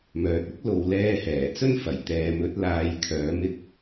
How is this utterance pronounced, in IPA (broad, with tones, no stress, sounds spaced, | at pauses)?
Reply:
m œː˨ t̚ ɪ˥ k̚ l o˨ w l ɛː˧ h ɛː˨˩ t͡s ɵ˥ n f ɐ˨˩ j t̪ ɛː˨ m ɵ˨˥ t̚ l aː˨˧ j kʰ œː˨˥ m ɪ˥ k̚